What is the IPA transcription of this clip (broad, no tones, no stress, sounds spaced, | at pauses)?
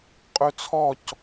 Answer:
qʼ ø t͡sʰ ɔ c